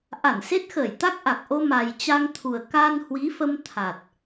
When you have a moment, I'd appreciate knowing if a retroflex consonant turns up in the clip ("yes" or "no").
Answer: no